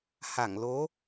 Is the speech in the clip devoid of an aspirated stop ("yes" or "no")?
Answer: yes